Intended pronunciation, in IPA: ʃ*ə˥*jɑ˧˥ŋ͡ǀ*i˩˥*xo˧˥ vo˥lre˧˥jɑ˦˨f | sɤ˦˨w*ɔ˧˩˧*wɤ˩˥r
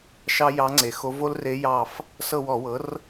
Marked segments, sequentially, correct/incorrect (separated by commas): incorrect, incorrect, correct